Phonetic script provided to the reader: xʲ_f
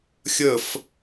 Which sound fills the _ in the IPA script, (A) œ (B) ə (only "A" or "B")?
B